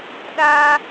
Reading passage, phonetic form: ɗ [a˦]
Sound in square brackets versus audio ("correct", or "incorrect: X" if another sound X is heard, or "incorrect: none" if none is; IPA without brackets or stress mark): incorrect: aː˦